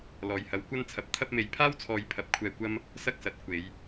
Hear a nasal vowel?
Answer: no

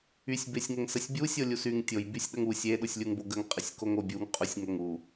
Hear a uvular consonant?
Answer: yes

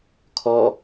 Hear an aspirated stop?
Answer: yes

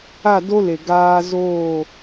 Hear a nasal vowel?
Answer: no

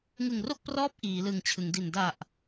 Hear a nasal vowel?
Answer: no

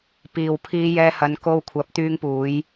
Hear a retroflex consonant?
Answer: no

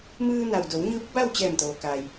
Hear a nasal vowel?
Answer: no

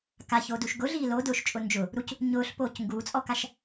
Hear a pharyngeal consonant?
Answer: no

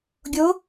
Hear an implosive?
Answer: no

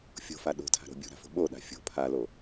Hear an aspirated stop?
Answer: yes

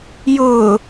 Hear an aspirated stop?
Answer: no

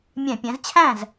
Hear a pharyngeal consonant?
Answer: no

